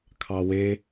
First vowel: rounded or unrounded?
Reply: unrounded